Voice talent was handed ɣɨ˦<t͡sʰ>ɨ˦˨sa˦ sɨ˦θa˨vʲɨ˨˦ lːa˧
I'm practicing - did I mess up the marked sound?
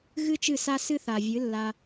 yes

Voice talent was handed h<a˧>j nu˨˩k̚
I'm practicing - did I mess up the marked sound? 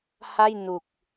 yes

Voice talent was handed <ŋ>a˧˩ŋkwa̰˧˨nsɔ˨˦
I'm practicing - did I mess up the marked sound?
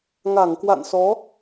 no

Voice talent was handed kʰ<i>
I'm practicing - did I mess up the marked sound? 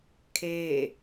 yes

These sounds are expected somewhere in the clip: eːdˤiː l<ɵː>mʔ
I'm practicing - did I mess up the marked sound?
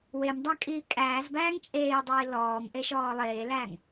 yes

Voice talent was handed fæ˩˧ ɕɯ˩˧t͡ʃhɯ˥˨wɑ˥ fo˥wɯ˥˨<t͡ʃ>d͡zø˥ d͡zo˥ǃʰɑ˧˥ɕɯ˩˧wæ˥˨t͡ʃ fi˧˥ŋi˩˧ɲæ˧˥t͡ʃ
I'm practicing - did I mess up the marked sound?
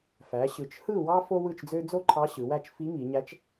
no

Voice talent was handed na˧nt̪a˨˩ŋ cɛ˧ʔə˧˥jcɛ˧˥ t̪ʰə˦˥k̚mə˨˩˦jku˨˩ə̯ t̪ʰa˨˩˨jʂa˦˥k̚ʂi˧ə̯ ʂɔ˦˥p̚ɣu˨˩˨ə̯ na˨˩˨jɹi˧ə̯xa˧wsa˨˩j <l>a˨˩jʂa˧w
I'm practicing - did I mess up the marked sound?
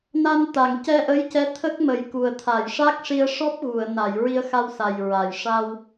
yes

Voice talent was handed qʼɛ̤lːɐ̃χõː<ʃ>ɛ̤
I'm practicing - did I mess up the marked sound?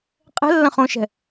no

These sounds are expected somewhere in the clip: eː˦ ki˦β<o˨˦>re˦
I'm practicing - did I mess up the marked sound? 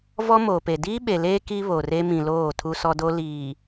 yes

